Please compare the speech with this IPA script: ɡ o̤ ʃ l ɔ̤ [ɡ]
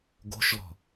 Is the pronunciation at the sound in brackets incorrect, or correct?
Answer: incorrect: none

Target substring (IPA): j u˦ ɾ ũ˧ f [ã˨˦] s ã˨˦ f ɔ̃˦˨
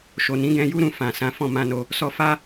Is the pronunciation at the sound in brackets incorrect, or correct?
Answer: incorrect: ã˨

